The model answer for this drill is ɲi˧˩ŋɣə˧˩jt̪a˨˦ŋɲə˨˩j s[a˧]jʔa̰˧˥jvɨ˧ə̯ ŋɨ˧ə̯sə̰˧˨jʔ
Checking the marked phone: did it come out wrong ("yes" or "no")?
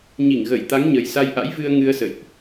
no